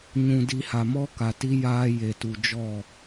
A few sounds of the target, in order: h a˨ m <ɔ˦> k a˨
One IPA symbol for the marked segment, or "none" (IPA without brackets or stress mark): ɔ˦